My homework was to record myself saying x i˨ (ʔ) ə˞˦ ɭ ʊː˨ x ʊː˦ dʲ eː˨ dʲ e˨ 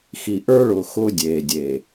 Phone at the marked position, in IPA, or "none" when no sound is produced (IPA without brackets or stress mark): ʔ